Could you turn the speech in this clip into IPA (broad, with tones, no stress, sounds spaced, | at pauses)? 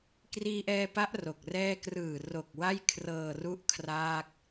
k r iː˧ ʔ ɛː˧ p a˦˥ ʔ r o˨˩ k̚ r ɛː˥˩ k r ɯː˨˩ r o˨˩ k̚ w a˥˩ j kʰ r ɤː˨˩ r u˦˥ ʔ kʰ r aː˥˩ k̚